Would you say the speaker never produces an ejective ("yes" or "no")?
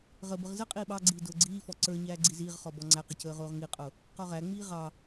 no